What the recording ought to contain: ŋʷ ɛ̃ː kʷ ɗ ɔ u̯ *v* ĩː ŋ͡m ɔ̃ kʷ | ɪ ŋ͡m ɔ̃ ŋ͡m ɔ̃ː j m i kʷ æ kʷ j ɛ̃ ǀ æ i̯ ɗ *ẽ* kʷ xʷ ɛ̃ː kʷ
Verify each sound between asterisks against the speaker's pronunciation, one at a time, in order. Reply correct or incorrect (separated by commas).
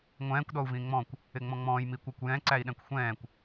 correct, incorrect